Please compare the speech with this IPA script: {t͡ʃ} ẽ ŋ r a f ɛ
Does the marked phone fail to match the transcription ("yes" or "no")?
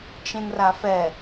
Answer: no